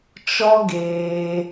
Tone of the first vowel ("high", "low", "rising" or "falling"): high